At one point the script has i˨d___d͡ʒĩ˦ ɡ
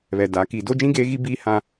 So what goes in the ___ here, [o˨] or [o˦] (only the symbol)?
o˦